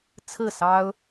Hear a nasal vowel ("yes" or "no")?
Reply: no